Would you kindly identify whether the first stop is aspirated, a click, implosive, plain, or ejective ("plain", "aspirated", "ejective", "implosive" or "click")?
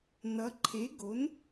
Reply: click